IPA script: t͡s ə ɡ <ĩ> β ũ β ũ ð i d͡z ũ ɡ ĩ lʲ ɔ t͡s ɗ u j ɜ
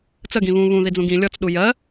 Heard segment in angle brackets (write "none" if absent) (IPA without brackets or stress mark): ĩ